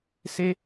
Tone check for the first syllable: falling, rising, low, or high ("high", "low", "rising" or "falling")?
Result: high